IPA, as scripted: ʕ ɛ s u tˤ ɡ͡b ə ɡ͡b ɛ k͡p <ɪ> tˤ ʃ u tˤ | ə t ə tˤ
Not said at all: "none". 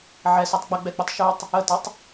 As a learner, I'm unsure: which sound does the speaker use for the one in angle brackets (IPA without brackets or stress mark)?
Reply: ɪ